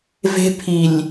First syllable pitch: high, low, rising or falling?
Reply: high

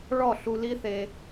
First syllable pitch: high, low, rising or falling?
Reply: falling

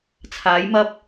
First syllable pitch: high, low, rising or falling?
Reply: rising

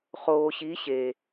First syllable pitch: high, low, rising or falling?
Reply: low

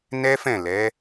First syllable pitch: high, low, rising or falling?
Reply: high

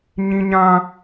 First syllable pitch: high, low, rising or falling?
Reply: high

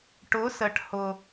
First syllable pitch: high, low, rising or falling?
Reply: rising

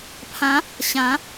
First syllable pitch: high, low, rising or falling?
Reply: rising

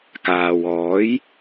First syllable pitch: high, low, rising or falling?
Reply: low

